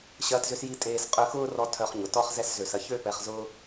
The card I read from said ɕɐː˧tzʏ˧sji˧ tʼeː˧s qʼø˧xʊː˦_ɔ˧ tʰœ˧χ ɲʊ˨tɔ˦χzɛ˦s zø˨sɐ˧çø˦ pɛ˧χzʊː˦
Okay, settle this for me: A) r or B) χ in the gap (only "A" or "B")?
A